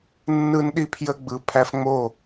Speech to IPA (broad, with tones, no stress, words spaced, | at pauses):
nːɯ˦nɗi˦pʰjə˦ɡ͡bɯ˨˦ pʰæ˦fŋ͡mo˦˨